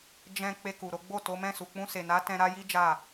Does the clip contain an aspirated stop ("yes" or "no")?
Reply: no